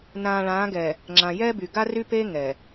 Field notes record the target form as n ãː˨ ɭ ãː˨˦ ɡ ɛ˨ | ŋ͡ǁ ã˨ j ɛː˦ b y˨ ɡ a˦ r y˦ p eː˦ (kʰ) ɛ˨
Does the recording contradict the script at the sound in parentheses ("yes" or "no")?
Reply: yes